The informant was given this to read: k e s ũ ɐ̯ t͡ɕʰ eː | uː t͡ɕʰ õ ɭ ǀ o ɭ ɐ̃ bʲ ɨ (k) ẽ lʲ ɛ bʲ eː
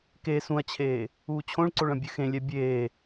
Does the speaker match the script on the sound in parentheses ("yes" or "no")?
no